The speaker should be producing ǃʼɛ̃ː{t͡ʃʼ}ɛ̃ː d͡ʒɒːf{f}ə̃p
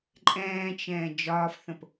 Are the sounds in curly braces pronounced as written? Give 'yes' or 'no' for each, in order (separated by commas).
no, no